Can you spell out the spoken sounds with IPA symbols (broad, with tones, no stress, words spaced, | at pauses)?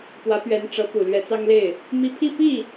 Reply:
pwä˧˥pɥɛ˧˥n ʈ͡ʂɤ˧˥ pu˨˩lɥɛ˧˥t͡sɑ˥ŋle˥˩ɪ̯ | mi˥˧ pʰi˥˧pi˥˩